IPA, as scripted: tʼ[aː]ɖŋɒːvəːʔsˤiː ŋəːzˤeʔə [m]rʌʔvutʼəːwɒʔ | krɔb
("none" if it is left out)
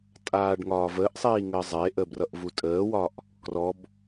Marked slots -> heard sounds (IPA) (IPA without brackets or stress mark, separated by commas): aː, b